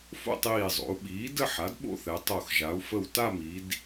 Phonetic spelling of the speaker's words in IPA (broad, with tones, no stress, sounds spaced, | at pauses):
f o̰˥˧ tˤ iː˧˩ zˤ o̰˩˧ u̯ ɓ iː˩˥ d ə˥˧ ħ a˩˥ d ɓ o̰˥˧ θ ɛ˩˧ tˤ o˧˩ x ʒ a˩˧ u̯ f ə˧˩ w t a˥˧ m i˩˧ d